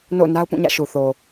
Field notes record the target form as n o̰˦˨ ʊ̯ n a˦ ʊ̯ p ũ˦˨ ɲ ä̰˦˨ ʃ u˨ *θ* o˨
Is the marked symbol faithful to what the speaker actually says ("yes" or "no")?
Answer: yes